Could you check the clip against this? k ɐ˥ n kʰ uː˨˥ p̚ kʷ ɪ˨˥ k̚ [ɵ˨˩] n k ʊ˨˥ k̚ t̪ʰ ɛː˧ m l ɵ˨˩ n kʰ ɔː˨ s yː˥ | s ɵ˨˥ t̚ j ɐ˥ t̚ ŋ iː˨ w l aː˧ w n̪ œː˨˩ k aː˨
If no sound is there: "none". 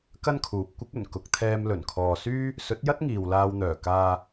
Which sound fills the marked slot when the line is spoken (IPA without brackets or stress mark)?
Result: ɵ˨˩